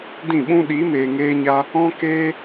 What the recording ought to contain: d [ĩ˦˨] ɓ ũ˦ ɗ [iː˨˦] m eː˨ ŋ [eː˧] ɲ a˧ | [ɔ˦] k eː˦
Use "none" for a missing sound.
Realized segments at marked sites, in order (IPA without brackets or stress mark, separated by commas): ĩ˦˨, iː˨˦, eː˧, ɔ̃˦